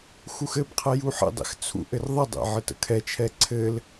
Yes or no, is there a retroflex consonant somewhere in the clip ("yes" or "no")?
no